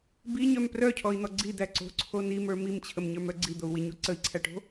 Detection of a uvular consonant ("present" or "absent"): absent